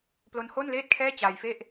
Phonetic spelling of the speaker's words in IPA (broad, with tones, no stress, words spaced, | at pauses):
plo˦˥nhoː˥˩nleː˥˩t̚ kʰɛː˥˩t͡ɕaː˧j fe˥˩ʔ